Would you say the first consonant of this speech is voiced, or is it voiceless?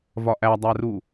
voiced